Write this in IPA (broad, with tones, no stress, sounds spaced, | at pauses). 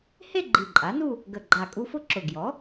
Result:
h e˥˧ ɡ͡ǃ i˨˩ ǃʼ a˩˥ n u˥˧ | ɡ ə˨˩ ɡ͡ǃ a˨˩ kʼ u˧ f ʊ˥˧ ǁ ʊ˨˩ ɡ j ɔ˩˥